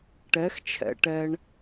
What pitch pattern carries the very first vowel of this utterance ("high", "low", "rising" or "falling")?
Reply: rising